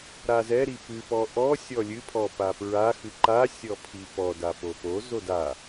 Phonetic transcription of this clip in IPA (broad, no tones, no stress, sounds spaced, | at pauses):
ɾ a z ɛ ɾ i p ɨ p ɔ ʔ ɔ sʲ ɔ lʲ ɨ pʰ ɔ p a p ɹ a x ɨ ǃ a sʲ ɔ pʰ i p ɔ d a p o p o z o d a